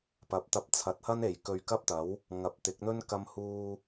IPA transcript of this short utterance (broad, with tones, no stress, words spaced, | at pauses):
pɐ˨˥p̚t̪ɐ˧p̚t͡sʰɐ˨˥t̚hɐ˥n e˨j kɵ˧ɥkɐ˥p̚t̪ɐ˨˥w | ŋɐ˨˥p̚t̪ɪ˨˥k̚n̪ɵ˥n kɐ˥mhuː˥